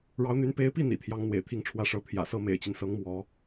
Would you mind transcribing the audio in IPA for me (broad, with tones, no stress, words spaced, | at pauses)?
ɻɑ˧˥ʊ̯n̪y˧˥n pe˧˥ɪ̯pi˥˩ n̪ḭ˨˩t̪ʰjɑ˧˥ŋ n̪wḛ˨˩ɪ̯t̪ʰi˥˩ŋʈ͡ʂʰwä˧˥ʂɤ˧˥ t̪ʰjä̰˨˩sɤ˥ mḛ˨˩ɪ̯t͡ɕi˦n sɤ˧˥ŋ mwɔ˧˥